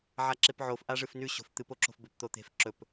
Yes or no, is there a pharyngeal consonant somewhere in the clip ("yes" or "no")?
yes